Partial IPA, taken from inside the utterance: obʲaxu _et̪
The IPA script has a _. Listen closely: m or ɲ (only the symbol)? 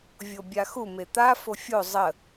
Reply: m